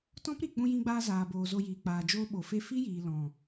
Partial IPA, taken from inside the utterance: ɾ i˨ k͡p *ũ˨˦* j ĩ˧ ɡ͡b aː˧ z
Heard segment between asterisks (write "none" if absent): ũ˧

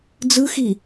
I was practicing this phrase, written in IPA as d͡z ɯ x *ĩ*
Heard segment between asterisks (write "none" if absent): i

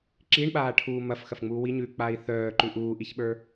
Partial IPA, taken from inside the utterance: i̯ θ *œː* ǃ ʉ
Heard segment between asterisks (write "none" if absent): œː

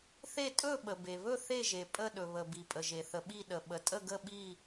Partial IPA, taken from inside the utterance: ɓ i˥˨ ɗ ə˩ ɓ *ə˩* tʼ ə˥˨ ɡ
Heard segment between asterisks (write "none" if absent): ə˩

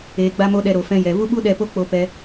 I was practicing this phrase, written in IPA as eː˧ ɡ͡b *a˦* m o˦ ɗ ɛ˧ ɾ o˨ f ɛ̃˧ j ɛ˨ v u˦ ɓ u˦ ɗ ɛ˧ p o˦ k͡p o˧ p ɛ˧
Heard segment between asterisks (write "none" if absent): a˦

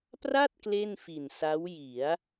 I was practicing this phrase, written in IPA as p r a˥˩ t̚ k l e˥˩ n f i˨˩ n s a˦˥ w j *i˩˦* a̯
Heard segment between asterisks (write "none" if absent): i˩˦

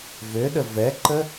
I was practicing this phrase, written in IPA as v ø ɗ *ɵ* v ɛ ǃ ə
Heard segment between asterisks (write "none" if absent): ə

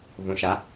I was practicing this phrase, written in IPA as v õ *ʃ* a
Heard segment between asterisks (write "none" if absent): ʃ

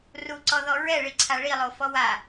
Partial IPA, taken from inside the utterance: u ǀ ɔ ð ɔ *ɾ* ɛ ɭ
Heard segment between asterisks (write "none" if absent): ɹ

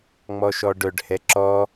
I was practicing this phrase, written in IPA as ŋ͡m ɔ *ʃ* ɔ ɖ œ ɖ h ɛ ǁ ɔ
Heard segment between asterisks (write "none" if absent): ʃ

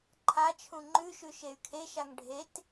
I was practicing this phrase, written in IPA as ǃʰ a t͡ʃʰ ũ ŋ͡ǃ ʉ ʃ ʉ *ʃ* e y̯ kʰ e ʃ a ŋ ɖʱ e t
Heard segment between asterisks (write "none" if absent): ʃ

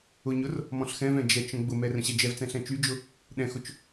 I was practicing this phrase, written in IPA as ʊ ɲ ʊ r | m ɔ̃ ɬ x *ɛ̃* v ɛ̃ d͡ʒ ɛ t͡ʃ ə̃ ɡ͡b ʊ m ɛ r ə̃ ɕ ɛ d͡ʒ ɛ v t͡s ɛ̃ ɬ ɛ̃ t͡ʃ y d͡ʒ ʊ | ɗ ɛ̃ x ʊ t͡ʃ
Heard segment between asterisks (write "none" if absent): ɛ̃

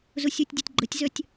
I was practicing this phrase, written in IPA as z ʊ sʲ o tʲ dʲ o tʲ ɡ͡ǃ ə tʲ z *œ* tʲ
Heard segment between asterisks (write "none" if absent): œ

